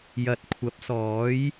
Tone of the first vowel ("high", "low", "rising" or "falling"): low